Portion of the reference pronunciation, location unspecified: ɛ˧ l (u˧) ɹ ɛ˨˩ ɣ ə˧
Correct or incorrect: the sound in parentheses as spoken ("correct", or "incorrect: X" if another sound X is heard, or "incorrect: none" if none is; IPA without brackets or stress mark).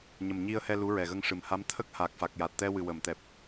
incorrect: u˧˥